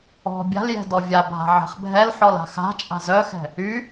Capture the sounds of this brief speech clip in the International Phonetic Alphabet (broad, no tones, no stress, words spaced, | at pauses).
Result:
ɔ̤ bʲa̤ljɛ̤ dɔvʲabʱa̤ ʕɛ̤χbʱɛlħɔl a̤xa̤t͡ʃʼa̤ zœxɛ̤ | y